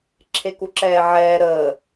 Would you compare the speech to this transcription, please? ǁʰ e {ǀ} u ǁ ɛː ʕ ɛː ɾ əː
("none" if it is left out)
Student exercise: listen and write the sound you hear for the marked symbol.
k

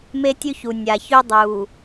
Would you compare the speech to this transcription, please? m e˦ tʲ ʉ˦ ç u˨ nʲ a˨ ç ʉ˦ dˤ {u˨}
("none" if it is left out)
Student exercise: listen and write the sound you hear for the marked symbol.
u˨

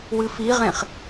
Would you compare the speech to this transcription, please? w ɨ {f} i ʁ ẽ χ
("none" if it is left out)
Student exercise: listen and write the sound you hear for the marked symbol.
f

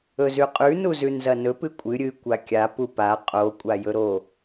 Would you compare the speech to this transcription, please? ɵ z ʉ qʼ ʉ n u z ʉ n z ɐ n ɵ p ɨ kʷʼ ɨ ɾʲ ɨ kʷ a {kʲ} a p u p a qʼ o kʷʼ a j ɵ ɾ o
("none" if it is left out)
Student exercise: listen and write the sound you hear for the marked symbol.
kʲ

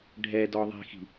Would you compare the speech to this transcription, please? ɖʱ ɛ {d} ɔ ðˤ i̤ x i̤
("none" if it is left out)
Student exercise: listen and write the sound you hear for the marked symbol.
d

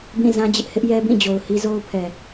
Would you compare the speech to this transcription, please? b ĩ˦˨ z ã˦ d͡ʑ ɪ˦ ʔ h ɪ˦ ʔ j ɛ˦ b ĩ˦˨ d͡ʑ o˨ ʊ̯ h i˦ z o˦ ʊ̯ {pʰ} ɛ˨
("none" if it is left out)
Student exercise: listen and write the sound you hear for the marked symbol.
pʰ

